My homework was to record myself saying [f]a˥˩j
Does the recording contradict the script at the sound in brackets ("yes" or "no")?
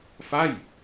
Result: no